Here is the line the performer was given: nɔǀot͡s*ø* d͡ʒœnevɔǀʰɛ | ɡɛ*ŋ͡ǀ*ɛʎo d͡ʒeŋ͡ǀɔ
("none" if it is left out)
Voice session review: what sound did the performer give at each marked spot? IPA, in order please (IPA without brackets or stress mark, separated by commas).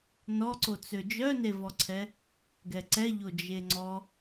ø, ǀ